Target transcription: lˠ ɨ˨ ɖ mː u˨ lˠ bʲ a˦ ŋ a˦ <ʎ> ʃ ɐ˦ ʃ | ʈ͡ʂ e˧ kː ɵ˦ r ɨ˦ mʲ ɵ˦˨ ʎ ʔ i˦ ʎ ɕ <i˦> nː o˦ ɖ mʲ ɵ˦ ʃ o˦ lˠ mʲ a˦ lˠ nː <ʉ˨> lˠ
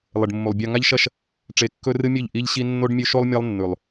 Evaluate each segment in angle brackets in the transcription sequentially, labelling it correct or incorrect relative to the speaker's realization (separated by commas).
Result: correct, correct, correct